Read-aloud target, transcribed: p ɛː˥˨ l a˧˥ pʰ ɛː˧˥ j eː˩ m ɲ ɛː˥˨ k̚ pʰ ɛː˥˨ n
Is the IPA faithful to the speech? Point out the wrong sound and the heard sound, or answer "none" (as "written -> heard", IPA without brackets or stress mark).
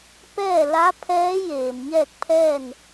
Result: none